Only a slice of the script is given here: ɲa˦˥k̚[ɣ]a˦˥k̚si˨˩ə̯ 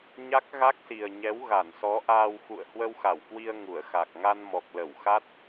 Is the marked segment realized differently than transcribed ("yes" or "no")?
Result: no